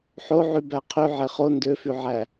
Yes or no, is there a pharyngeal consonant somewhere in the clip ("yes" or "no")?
yes